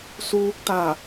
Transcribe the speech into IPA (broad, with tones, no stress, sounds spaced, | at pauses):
s uː˧ k̚ t̪ a˧˩